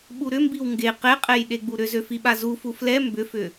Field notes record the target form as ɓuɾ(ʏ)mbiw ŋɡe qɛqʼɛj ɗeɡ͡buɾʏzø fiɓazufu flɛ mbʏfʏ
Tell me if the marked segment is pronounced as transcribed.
yes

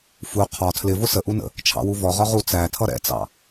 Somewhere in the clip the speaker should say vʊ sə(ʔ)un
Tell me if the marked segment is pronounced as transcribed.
yes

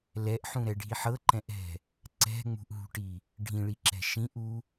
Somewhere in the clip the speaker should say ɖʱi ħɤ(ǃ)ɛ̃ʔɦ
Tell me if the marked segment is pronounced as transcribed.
yes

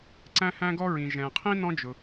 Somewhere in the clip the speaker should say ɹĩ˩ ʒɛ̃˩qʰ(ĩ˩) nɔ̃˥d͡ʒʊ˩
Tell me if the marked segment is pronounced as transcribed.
no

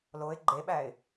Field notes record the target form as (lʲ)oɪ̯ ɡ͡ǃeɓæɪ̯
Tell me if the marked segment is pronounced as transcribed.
no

